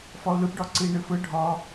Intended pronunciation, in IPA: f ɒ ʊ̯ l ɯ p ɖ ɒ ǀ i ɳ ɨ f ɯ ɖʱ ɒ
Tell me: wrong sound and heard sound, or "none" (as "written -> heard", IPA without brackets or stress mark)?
none